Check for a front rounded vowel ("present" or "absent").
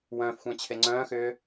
present